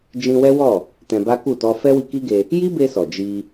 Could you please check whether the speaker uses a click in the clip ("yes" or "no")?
no